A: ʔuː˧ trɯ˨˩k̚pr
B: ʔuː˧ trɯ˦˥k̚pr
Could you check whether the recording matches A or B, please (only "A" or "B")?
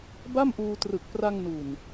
A